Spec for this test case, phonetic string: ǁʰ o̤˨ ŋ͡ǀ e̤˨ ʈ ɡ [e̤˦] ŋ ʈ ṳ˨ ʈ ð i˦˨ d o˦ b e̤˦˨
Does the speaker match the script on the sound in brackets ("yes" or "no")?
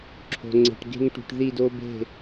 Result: yes